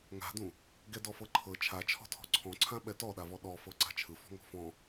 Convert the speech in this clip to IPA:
ŋ a̤ d ũ | ɡ ɛ d ɔ f ɤ ǃʰ ɤ t͡ʃʰ a t͡ʃʰ ɔ̤ tʰ ɔ̤ ǀʰ ɔ̃ ǀʰ ã ɓ ɛ t ɔ ɗ a v ɔ ɗ ɔ f ɤ ǀ a̤ t͡ʃʰ ɯ f ɔ̤ ŋ ɔ̤ f ɔ̃

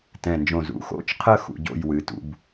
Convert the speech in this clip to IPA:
t ɛ̃˧˩ n d͡ʒ õ˧˩ z ṵ˩˧ x o̰˥˧ t͡ʃ qʰ ə˥˧ x ṵ˥˧ ɟ o̰˥˧ j w ɨ˩˧ t ṵ˧ b

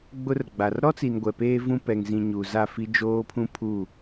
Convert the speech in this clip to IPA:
ɡ͡b ʊ˦ r ɡ͡b a˨ r ɾ ɔ˦ t͡s i˨ n ɡʷ ɛ˨ p eː˦ v ũ˦ p ɛ˨ ŋ z ĩ˨ ɲ u˨ z a˦˨ f i˦ d͡ʒ oː˦ pʰ ũ˦ pʰ u˦˨

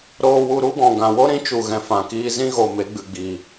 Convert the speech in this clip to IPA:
ɾ oː˧ w u˧ ɾ u˦ ɡ ɔ̃˨ ɡ ã˨ w o˦ ɾ ĩ˨˦ t͡ʃ u˨ ɣ ɛ̃˨ f ã˨ k iː˧ z ĩ˦ ɣ o˨ m e˨˦ ɡ͡b ɨ˨ ɡ͡b iː˨

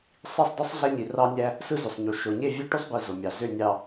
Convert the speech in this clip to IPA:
sˤ i˦˨ sˤ dˤ y˦ sˤ ɮ æ˦ ɲ i˨ r ɑ˦ nʲ æ˦ | s ɯ˦ z ø˨ sˤ ɲ u˨ ʃ o˨ ɲ e˦˨ vʲ ø˦ ʈ u˦ sˤ b i˨ z o˨ mʲ ɑ˨ z ø˦˨ nʲ ɑ˨

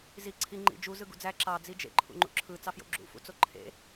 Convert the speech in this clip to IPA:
z i ǀʰ i ŋ͡ǃ ḭ d͡ʒ u z ɯ ɡ ṵ d͡z æ ǁ ɑ d͡z i d͡ʒ ḛ ǃʰ ṵ ŋ͡ǃ ṵ ǁʰ ɯ t͡s ɑ f j o̰ ɡ͡ǁ ṵ f ṵ t͡s o ǃʰ ḛ

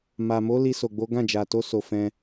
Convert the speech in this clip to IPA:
m a˨ m o˨˦ l i˧ s o˨ ɡ͡b o˨˦ ɡ ã˦˨ d͡ʒ a˨ t o˧ s o˨ f ɛ̃˧

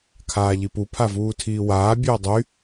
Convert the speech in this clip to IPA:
kʰ aː ʎ i p u pʰ a v uː tʰ iː w aː bʲ ɵː dˤ y

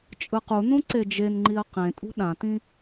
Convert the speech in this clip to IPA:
t͡ʃʼ ɯ q u n ũ ǀ e d͡ʒ e n ŋ͡ǃ i ɐ̯ q ẽ tʼ ṳ ɗ ã t ĩ

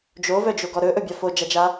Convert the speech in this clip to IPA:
d͡ʒ o v œ d͡ʒ o ɡ ɔ ɾ ɵ ʔ ɵ bʲ a f o d͡ʒ a d͡ʒ a

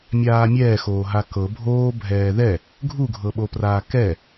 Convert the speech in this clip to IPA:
mʲ aː mʲ ɛː x oː ɦ a k ɤ bʱ oː bʱ ɛː ð ɛ | ɡʱ u ɡʱ ɤ ɓ o p r aː k ɛ

